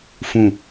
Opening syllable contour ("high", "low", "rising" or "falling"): low